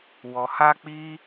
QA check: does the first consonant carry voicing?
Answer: yes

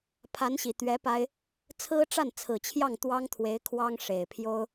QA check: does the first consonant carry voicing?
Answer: no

